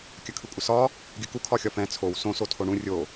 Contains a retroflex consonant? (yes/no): yes